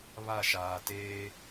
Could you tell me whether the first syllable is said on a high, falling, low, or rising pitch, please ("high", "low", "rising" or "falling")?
falling